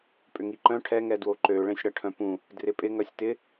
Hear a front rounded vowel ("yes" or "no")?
yes